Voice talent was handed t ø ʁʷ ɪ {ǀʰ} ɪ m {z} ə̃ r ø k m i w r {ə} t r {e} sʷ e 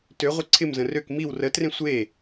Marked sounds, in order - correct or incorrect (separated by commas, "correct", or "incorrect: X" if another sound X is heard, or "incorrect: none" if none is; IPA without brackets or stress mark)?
correct, correct, correct, incorrect: ẽ